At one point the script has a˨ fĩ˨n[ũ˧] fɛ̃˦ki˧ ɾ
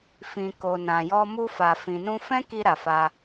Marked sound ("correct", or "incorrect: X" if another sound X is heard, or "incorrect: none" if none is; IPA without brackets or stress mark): correct